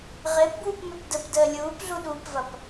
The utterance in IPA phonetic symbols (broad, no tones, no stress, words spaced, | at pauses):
ʁɪːpbwupmøp dəpdəː lʲuːpɮuɗuːpvɐp